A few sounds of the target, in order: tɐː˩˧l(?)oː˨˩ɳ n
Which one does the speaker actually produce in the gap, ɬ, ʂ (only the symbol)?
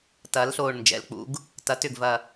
ɬ